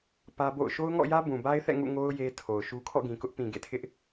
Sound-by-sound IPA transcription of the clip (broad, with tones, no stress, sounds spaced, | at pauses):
p ä˦ b o̰˦˨ ʊ̯ ʃ o˦ ʊ̯ ŋ ɔ̰˦˨ j ä˦ b ũ˨ b a˦ ɪ̯ θ ɛ̰˦˨ ŋ ṵ˦˨ ŋ o˦ ʊ̯ j e˦ tʰ o˨ ʊ̯ ʃ u˦ kʰ ɔ̰˦˨ ɡ ĩ˨ k ʊ˦ ʔ p ĩ˨ ɡ ḛ˦˨ tʰ ɪ˦ ʔ